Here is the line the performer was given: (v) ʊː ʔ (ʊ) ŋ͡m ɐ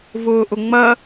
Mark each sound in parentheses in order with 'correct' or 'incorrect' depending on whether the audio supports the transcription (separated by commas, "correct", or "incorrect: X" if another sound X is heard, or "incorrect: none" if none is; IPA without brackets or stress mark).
correct, correct